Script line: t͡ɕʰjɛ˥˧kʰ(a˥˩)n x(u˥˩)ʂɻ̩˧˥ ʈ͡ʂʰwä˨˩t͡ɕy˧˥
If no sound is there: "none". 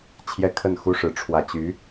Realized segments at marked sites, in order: ə˥˩, u˥

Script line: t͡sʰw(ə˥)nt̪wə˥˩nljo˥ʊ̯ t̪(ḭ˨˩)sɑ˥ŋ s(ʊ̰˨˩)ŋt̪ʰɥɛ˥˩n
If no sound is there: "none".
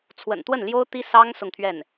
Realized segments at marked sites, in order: ə̰˨˩, i˥, ʊ˥˧

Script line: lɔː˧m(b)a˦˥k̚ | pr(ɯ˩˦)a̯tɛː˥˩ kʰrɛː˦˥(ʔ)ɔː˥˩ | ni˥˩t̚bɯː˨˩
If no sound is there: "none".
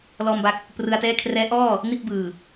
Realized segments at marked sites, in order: b, ɯ˧, ʔ

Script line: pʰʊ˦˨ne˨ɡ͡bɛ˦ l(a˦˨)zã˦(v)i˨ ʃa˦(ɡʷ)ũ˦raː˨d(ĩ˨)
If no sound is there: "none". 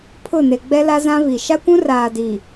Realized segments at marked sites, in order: a˦, v, kʷ, i˨

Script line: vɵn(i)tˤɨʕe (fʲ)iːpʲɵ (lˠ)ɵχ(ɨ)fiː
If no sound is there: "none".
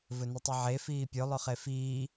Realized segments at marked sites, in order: ɨ, f, lˠ, e

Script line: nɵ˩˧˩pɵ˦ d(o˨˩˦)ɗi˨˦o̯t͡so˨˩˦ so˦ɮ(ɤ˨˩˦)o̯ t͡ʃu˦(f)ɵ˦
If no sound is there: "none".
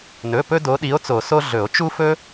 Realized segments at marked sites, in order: o˨˦, ɵ˨˩˦, f

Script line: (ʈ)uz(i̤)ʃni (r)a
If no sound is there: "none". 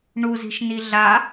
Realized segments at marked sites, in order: ɳ, i̤, ɮ

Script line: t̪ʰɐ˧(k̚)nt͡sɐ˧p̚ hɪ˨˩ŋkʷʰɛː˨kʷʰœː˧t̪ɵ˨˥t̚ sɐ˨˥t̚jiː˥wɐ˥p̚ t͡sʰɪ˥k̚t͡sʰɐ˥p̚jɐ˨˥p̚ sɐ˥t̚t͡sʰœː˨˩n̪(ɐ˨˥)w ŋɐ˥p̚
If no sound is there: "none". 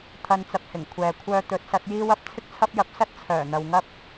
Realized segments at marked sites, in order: none, ɐ˨

